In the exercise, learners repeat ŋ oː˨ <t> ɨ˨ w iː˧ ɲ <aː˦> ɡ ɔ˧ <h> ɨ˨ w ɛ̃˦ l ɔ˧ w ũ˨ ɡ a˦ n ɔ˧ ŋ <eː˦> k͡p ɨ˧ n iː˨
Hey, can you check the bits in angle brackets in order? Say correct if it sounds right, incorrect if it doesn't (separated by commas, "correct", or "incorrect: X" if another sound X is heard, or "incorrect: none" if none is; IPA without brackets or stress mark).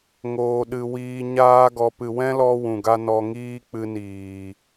incorrect: ɗ, correct, incorrect: p, incorrect: iː˦